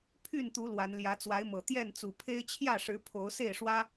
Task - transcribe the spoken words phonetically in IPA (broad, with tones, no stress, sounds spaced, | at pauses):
pʰ y˥˨ n t̪ u˨˦ l w a˨˦ n l j ä˨˦ t͡s w a˨˦ ɪ̯ m ɤ˨˩ t̪ j ɛ˥˨ n t͡s u˨˩ pʰ e˦ ɪ̯ t͡ɕʰ j ä˥˨ ʂ ɻ̩˨˦ pʰ o˨˦ ʊ̯ s e˥˨ ɪ̯ ʂ w ä˦